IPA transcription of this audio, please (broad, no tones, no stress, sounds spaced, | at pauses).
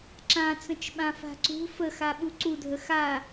ǁ ã t͡s ə̃ t͡ʃ ɓ ã f a̤ ǀ ṳ f ə x a ɓ u ǀ u dʱ ə x a